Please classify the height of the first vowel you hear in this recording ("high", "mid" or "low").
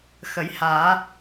mid